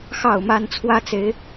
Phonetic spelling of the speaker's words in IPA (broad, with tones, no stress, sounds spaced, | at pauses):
x ɑ˥˨ ʊ̯ m a˦ n t͡sʰ w ä˦ t͡s e˨˦ ɪ̯